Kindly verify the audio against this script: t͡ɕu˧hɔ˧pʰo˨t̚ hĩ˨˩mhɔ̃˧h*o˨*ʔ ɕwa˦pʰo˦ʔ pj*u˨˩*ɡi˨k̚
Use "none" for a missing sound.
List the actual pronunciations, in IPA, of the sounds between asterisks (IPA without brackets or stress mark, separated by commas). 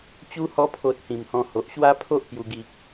o˨, u˨˩